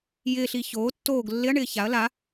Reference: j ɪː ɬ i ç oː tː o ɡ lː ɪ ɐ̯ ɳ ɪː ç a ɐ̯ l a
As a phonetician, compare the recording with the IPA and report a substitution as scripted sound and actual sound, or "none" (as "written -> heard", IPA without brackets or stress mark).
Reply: o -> oː